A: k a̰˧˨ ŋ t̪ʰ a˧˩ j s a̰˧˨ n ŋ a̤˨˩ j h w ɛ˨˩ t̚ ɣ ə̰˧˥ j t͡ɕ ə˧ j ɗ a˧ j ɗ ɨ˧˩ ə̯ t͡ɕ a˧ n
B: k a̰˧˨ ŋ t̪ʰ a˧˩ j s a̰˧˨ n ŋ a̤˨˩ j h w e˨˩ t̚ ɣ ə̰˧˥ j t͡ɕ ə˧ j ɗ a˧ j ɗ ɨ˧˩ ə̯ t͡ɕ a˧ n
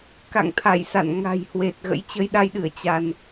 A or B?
B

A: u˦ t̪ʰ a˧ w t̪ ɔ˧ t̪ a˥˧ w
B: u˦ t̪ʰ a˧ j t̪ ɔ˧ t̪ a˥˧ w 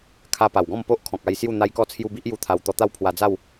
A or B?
A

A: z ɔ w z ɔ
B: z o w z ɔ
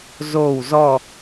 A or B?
B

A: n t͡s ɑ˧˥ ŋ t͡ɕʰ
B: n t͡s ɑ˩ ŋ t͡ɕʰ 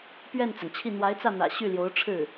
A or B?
B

